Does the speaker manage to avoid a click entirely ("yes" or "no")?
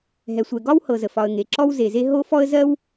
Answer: no